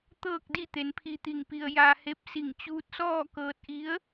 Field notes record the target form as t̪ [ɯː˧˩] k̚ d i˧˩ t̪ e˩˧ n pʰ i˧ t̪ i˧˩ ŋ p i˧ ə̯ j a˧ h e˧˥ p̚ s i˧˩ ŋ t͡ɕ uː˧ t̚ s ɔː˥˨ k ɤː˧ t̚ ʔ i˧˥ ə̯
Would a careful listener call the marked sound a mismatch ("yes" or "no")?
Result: yes